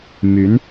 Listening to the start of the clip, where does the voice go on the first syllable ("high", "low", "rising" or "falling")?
rising